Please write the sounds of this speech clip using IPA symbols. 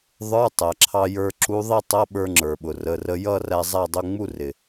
ðˤə˞˧˥˧ tˤæ˩ǁʰɑ˧jə˞˧ǁu˧˥ ðˤi˥˧tˤʌ˧˥˧ ɓə˞˧ŋ͡ǁə˞˩ɓʊ˩ rə˩˧˩rə˧jʌ˥˧ ræ˧zˤæ˥˧dˤʊ˧˥˧ ŋ͡mu˥˧rɪ˩

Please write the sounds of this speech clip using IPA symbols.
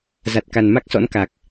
za˨˩t̚ka˨˩n ma˦˥k̚sɔ̰˧˥n ka˨˩k̚

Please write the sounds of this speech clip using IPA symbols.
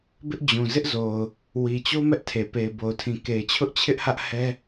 bɪ˦ʔd͡ʑũ˨ zɪ˦ʔzo˨ʊ̯ | wi˨t͡ɕo˦ mɛ˦ʔtʰe˨ pe˨ɪ̯bo˨ʊ̯tʰĩ˨ ke˨ɪ̯t͡ɕʰʊ˦ʔt͡ɕʰɪ˦ʔhä˦ʔ hɛ˦

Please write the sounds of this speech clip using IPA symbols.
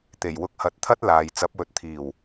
t̪e˨˩jwʊ˧k̚hɐ˨˥t̚t̪ʰɐ˥t̚ laː˨j t͡sɐ˨˥p̚wɵ˨˥t̚t̪ʰiː˨˩w

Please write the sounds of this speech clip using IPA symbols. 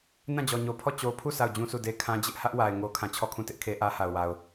nã˦˨d͡ʑɔ˨ɲo˨pʰɔ˦˨ t͡ɕo˨pʰu˦˨ sʰa˦˨ʊ̯d͡ʑũ˦sʰu˦˨de˦ kʰã˦d͡ʑɪ˦ʔ hä˦ʔwa˨ɪ̯ ŋo˦kʰã˦˨ t͡ɕʰɔ˦˨kʰũ˦˨tɪ˦ʔ kʰe˦ ʔä˦ha˨ʊ̯wa˨ʊ̯

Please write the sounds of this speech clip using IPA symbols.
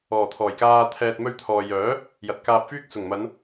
ɔː˨˩t̪ʰɔː˨˩jkaː˧ t̪ʰɛː˧t̚ mɵ˧ɥt̪ʰɔː˨jœː˨˥ | jɐ˨t̚kaː˧p̚fyː˥k̚ sʊ˨˩ŋmɐ˨˧n

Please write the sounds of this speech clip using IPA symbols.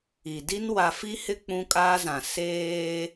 i˨di˦n wa˨fi˦hɪ˦ k͡pũ˦kʼaː˦zã˨ seː˦

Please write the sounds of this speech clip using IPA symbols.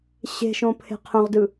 ɕe̤ʃõpʰe̤ qʰœ̃ʁdɯ

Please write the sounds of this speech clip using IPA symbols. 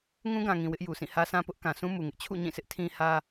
ŋũ˦ɡã˨ŋĩ˨ wɪ˦ʔju˨sĩ˦˨ hä˦sã˦pʊ˦ʔ kã˨sũ˦mu˨ŋɪ˦ʔ t͡ɕʰṵ˦˨ɲĩ˦˨sʰɪ˦ʔ tʰĩ˦hä˦

